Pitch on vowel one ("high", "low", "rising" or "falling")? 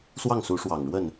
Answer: falling